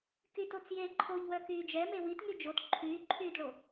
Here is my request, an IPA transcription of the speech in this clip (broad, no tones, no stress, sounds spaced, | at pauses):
k y t o t͡s j e ǃʰ o ʎ w œ k yː d͡ʒ ɛ m e w i t ŋ y d͡ʒ o t ǃʰ yː ǃʰ yː d ɭ o